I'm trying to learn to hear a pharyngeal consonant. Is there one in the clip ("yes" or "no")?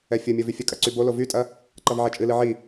yes